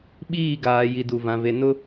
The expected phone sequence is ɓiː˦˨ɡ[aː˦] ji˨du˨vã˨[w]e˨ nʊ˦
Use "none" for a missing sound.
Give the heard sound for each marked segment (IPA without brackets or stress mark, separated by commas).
aː˨, v